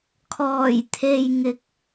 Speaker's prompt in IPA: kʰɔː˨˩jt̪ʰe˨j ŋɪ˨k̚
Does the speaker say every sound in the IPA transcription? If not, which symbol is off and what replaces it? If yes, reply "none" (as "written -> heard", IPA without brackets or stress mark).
ɪ˨ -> ɪ˨˥